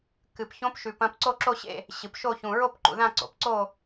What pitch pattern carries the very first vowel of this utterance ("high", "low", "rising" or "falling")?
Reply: low